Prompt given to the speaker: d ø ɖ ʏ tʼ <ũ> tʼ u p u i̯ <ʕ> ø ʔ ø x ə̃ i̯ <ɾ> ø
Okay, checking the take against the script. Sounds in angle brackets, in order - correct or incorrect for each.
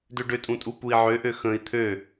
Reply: correct, correct, incorrect: t̪ʰ

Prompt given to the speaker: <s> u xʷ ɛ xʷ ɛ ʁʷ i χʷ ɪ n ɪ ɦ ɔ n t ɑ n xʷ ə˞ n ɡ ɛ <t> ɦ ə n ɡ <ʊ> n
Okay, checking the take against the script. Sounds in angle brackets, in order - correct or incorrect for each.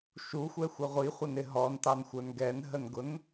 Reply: incorrect: ʃ, incorrect: n, correct

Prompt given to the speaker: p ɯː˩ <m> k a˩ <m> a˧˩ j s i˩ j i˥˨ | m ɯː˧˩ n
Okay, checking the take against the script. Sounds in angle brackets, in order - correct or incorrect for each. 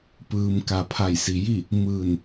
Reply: correct, incorrect: pʰ

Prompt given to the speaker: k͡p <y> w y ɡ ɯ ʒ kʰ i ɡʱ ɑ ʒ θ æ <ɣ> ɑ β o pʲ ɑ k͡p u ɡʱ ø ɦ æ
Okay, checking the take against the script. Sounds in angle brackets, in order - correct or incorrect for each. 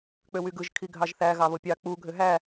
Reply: incorrect: ø, correct

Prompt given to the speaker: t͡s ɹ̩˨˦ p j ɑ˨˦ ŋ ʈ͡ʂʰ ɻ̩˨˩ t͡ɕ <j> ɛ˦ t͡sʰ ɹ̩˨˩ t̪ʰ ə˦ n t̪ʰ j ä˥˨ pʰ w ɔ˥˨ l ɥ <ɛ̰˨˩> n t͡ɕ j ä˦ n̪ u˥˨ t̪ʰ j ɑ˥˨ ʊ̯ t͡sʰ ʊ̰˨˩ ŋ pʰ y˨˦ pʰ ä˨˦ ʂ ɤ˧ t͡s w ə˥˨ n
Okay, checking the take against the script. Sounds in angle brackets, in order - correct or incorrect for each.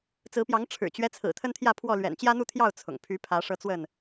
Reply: incorrect: ɥ, correct

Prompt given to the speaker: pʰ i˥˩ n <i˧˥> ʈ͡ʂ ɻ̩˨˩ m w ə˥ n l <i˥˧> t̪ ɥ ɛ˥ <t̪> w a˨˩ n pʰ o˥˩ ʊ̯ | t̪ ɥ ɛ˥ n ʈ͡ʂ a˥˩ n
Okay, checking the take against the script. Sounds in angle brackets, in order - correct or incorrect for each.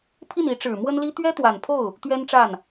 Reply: correct, incorrect: i˥, correct

